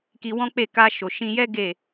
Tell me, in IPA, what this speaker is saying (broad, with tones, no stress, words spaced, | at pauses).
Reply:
ki˧wɔ̃˦k͡pe˦˨ ka˧ʃo˨ʃĩ˧jɛ˦ ɡe˦˨